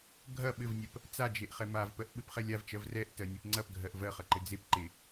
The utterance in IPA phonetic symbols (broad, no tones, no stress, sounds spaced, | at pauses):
ɡʱ ɐ ɓ ɘ v nʲ ɜ p | t͡s a d͡ʒ e ʔ χ ɛ m a v p ɜ ʔ ɓ ɘ p χ ɛ lʲ a v t͡ʃ ɜ v r ɛ ʔ t ɜ nʲ e p ŋ͡ǀ ɐ p ɡʱ ɜ ʔ v ɜ χ ɐ ǃ ɘ d͡z e p ǃ e